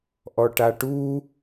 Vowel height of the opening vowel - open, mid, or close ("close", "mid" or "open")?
mid